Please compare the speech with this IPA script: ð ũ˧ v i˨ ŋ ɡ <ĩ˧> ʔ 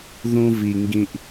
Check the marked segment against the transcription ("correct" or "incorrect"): correct